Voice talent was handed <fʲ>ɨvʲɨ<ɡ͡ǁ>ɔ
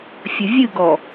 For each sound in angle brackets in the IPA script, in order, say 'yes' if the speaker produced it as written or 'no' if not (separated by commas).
yes, no